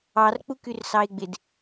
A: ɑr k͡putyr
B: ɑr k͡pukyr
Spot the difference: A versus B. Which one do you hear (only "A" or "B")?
B